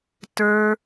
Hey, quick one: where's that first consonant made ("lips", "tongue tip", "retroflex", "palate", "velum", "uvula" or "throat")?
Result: tongue tip